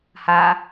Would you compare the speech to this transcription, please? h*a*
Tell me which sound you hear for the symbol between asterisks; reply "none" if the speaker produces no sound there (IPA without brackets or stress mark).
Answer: a